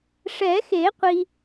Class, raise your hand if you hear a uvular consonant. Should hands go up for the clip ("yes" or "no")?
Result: yes